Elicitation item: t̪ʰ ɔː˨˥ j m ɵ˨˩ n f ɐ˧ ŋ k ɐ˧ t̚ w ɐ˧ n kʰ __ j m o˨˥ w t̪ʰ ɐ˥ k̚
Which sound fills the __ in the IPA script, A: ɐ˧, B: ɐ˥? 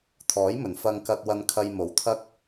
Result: A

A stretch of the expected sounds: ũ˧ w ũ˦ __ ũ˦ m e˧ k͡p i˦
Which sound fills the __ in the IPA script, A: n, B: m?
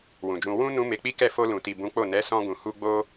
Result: A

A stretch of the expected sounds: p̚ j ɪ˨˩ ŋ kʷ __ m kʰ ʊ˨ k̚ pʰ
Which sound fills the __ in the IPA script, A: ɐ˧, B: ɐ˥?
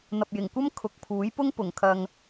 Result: B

